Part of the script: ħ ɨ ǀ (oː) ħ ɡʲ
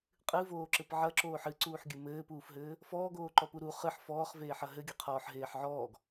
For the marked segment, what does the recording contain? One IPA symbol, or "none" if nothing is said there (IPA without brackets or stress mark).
uː